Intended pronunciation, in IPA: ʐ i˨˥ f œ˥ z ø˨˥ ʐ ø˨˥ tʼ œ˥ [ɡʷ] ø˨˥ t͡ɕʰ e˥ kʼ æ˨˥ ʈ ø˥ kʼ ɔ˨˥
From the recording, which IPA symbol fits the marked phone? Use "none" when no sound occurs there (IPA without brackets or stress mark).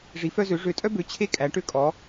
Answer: b